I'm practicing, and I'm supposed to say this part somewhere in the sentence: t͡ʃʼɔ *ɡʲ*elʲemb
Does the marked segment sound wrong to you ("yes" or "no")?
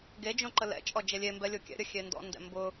yes